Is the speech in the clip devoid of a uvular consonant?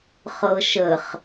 no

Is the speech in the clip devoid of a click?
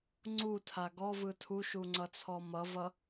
no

